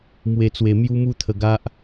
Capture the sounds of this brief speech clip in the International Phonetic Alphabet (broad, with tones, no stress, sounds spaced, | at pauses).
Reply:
m w e˧ t͡s w e˧ m j u˦ m u˥˧ t̪ʰ ə˧ ɡ a˦ ʔ